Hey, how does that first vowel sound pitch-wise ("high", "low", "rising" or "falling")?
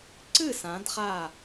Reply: falling